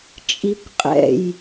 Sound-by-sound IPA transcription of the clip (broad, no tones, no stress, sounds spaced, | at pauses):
t͡ʃʼ i kʷ qʼ ɛ̰ j